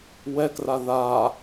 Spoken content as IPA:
w ɛ k r a ð a

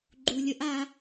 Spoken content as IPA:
ɡ͡ǃ u˨ lʲ ə˧ ʔ a˧

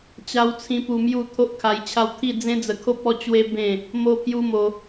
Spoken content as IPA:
t͡ɕ a˧ w t͡sʰ ĩ˧ p u˧ m j u˥˧ t̪ʰ o˦ ʔ kʰ a˧ j t͡ɕʰ a˦ w t̪ʰ i˥˧ d͡z ẽ˦ d͡z ə˧ kʰ o˦ p̚ ɔ˦ t͡ɕ w e˦ b ẽ˥˧ | m o˦ pʰ j u˦ m o˧

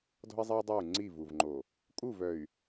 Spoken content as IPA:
d ɔ̤˦ i̯ zˤ e˦ y̯ dˤ ø˦˨ u̯ ŋ͡ǀ i˦˨ v u˨ v ŋ͡ǃ o˨ | kʼ u˦˨ v œ˨ y̯

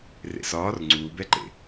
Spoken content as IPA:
r ḛ s ɒː r ŋ͡ǀ uː b ɛ ǃ ḛ

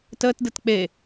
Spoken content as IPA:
t əː t d ɯ t k͡p e

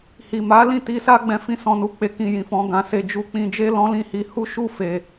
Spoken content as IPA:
h i˨ m a˨˦ l ĩ˦˨ t i˧ s a˦ ɡ͡b ɛ̃˧ f ĩ˧ s ɔ̃˨ n u˨ k͡p e˨˦ k ĩ˧ j ĩ˨ f ɔ̃˧ ɡ ã˨ s e˧ d͡ʒ u˧ k͡p ĩ˧ d͡ʒ e˦ l ɔ̃˦ l ĩ˦˨ h i˧ h u˦ ʃ u˦˨ f e˨

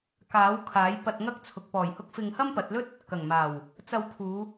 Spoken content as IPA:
k aː˨˥ w kʰ aː˨˥ j p ɐ˧ t̚ ŋ ɐ˥ k̚ t͡sʰ ʊ˨ k̚ p ɔː˨˩ j h ʊ˧ k̚ f ɪ˧ ŋ h ɐ˥ m p ɐ˨˥ t̚ l ɵ˥ t̚ | k ɐ˨˩ ŋ m aː˨˩ w | t͡s ɐ˧ w kʰ uː˨˧

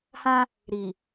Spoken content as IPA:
h ã˦ | ɾ i˨

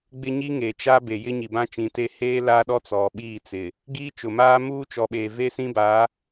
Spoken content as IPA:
ɡ͡b ɪ˦ ɲ i˦ ŋ eː˨ t͡ʃ a˦ b e˨ j ɪ˦ ɲ i˨ b ã˦ t͡ʃ ĩ˨˦ t e˦ h eː˦ l aː˦ ɗ ɔ˦ t͡s ɔ˨ ɓ iː˦˨ t͡s ɪ˨ | ɡ iː˦ t͡ʃ ʊ˨ m aː˦ m uː˦ t͡ʃ ɔ˨ ɓ eː˨ v e˦ s ĩ˦ b aː˨˦

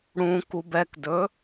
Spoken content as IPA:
ɽ ũ k u b ɛ k d ɵ

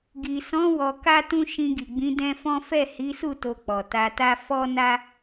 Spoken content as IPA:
ɡ i˨ s ɔ̃˨˦ w ɔ˧ k a˦ t ũ˦ ʃ ĩ˧ ɡ i˨ ɡ͡b ĩ˨˦ d ɛ̃˦ f ɔ̃˦ f ɛ˦˨ h i˨˦ s u˦˨ t o˧ k͡p ɔ˨ t a˧ t a˦ f ɔ˦ n a˦

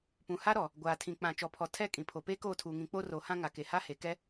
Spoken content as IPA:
p ũ˨ h a˦ ɾ ɔ˨ | ɡʷ aː˨ tʰ ĩ˨ k͡p ã˨ t͡ʃ ɔ˨ pʰ ɔ˨ tʰ ɛ˦˨ kʼ ĩ˨ pʰ o˨ p eː˦ k oː˦˨ tʰ uː˨ ŋ ĩ˨˦ k͡p o˦ r o˨˦ h ã˦ ŋ a˨ k e˨ h a˦ h e˨ k ɛ˦

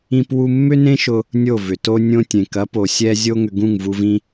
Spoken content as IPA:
ĩ˦ p w u˦ mː ʏ˦ n ẽ˦ ʃ ʊ˧ | nʲ o˦˨ v ʏ˨ t o˦ nʲ õ˧ tʲ ẽ˨ k ɐ˨˦ p o˨ sʲ ɛ˧ zʲ o˦ ŋ ʏ˧ ɡ ũ˦˨ ŋ v u˧ v ĩ˦

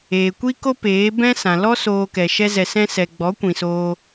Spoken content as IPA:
eː˨ kʷ i˦ k o˦ p eː˨˦ b ɛ̃˦ s ã˨ l ɔ˦ s oː˧ k ɛ˨ ʃ ɛ˦ z ɛ˧ s ɛ̃˦ s ɛ˧ ɡ͡b ɔ˨˦ kʷ ĩ˨ s oː˧

